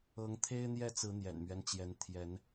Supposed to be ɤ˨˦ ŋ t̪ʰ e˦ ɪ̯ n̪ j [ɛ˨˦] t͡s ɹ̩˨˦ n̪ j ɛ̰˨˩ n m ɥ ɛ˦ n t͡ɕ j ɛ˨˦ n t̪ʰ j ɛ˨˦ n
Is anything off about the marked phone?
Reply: yes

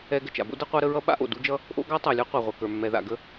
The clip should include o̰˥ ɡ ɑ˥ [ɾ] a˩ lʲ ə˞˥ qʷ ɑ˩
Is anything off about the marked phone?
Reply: yes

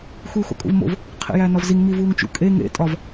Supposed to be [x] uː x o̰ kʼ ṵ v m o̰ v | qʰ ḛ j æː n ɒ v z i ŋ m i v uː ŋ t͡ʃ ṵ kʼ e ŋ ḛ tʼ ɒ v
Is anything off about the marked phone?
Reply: no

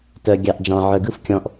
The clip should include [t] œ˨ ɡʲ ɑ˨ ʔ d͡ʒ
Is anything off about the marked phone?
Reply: no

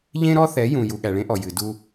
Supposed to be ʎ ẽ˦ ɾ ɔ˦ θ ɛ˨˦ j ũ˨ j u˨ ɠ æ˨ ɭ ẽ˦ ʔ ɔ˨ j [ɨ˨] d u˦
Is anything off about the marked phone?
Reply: no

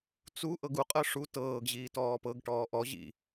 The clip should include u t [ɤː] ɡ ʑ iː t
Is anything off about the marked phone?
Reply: no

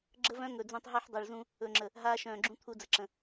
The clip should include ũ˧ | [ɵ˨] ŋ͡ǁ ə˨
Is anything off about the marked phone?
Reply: no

